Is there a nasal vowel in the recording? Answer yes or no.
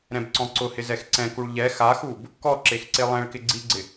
yes